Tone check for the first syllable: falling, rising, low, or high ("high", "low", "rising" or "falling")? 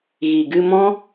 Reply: low